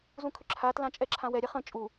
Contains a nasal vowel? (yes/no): yes